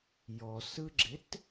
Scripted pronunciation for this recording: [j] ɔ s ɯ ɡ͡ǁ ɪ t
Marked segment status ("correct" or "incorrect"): correct